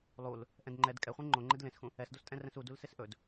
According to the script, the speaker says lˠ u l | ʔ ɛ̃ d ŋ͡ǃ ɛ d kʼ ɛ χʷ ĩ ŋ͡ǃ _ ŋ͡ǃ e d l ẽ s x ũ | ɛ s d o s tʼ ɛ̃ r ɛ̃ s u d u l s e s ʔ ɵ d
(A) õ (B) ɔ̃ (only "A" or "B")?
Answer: A